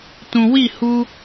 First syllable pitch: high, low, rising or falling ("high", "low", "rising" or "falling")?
low